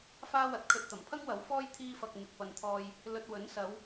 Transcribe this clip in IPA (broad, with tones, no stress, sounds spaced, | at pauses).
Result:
f aː˥ w ɐ˨˥ t̚ kʰ ɵ˨ t̚ t̪ ɐ˨˩ m pʰ ɐ˥ ŋ w ɐ˨˥ w f ɔː˥ j t̪ʰ iː˧ f ɐ˨ k̚ m ɪ˨ k̚ p ɐ˨ n t̪ʰ ɔː˧ j | l ɵ˨ t̚ w ɵ˨˥ n s ɐ˨˧ w